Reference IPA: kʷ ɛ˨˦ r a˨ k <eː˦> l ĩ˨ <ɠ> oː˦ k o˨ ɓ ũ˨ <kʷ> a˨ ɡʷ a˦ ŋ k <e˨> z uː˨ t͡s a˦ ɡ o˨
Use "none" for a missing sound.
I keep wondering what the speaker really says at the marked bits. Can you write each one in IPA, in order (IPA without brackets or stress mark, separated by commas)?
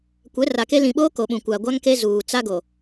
e˦, ɓ, kʷ, e˦